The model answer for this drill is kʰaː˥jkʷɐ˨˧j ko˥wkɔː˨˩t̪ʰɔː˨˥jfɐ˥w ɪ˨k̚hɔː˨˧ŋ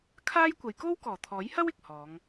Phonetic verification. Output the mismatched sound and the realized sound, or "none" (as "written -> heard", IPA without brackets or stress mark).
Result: f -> h